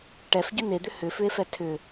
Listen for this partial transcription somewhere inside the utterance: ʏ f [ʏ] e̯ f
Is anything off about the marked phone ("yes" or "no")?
no